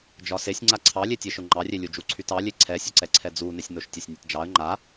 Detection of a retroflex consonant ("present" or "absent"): absent